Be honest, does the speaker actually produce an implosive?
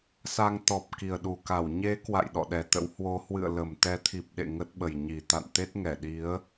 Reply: yes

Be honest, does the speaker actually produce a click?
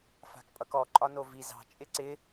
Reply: yes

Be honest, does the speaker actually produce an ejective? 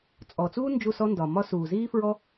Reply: yes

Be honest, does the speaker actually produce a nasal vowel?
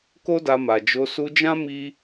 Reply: yes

